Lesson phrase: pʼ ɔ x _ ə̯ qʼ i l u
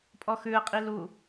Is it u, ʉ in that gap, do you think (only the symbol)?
ʉ